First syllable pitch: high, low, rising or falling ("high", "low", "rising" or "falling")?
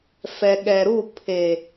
low